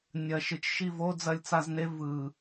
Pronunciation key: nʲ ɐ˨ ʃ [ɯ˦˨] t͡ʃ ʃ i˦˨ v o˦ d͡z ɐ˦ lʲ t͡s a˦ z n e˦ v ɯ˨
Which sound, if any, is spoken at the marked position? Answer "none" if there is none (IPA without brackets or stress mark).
ɯ˨